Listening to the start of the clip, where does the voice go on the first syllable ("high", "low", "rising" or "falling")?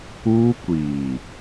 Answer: high